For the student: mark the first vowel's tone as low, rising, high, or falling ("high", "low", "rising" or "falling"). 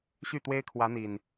falling